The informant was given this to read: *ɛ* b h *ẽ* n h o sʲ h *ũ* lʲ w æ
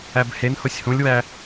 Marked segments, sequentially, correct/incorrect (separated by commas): incorrect, incorrect, correct